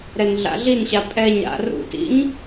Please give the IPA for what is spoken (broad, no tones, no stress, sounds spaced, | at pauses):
ɾ ɛ n ɮ a̰ ɮ i n ɕ a pʼ ɛ ɲ ɾ a̰ r ṵ t ḭ ɲ